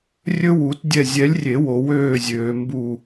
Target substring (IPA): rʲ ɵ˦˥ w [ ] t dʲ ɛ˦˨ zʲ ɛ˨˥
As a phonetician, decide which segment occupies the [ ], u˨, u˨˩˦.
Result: u˨˩˦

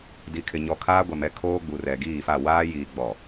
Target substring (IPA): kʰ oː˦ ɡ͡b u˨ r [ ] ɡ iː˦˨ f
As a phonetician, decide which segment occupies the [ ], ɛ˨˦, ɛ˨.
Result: ɛ˨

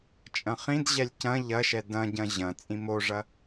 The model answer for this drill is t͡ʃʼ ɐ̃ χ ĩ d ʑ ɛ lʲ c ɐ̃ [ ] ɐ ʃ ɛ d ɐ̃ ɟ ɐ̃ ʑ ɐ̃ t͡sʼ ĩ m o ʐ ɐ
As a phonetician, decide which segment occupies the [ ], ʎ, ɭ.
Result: ʎ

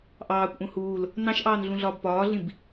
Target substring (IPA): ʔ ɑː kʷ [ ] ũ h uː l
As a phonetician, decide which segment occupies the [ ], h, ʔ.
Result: ʔ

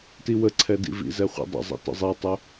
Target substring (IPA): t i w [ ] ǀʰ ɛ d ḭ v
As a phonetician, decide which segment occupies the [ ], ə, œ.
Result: ə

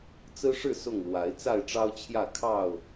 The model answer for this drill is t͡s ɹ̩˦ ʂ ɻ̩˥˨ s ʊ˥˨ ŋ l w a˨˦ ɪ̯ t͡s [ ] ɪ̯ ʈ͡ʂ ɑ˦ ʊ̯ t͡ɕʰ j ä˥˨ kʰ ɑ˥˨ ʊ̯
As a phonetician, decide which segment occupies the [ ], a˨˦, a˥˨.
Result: a˥˨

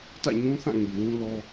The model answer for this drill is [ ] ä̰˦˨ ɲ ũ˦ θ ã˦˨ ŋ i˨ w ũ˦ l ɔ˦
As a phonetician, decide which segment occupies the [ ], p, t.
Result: t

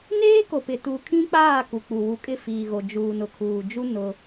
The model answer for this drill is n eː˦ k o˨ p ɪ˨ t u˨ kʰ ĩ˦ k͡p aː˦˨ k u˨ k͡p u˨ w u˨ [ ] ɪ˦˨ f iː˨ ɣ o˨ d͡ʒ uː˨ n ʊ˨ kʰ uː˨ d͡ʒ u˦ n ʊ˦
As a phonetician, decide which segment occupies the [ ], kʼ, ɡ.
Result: kʼ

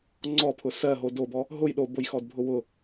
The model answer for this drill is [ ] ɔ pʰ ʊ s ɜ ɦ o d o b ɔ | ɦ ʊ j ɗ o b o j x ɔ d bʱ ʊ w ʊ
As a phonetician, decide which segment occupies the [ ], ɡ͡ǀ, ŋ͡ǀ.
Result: ŋ͡ǀ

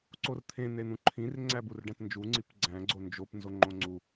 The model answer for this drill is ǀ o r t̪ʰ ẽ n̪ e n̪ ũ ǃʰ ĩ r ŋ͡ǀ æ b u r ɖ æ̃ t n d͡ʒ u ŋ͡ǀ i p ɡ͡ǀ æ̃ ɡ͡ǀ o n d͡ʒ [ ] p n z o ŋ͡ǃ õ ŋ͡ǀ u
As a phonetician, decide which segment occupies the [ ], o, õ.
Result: o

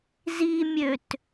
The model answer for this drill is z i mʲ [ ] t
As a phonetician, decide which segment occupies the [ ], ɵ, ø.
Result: ø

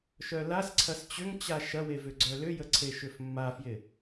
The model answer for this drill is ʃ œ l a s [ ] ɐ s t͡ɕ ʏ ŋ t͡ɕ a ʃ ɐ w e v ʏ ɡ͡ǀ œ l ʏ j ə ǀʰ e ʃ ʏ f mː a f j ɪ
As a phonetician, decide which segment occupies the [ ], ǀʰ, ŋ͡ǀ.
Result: ǀʰ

